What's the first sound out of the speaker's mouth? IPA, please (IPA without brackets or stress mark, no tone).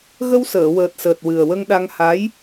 ɣ